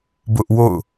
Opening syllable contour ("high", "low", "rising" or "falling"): high